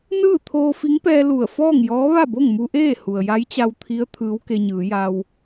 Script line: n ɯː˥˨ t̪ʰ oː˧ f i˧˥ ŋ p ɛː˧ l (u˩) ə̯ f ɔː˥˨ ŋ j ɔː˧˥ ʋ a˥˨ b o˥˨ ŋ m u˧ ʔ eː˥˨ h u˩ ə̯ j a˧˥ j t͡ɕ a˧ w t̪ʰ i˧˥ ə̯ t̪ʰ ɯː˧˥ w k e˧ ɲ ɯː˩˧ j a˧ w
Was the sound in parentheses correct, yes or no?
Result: no